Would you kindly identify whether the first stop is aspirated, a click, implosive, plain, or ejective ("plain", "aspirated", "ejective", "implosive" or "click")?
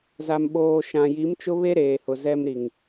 implosive